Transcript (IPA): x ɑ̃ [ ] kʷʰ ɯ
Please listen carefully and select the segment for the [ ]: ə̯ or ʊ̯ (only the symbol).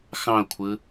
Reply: ʊ̯